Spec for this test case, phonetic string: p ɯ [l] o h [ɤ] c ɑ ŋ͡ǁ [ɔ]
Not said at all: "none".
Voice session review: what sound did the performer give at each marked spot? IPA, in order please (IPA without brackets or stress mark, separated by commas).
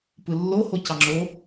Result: lː, o, o